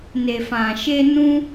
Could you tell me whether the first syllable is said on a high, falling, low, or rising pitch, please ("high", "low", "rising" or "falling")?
low